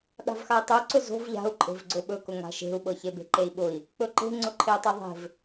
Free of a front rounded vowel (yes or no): yes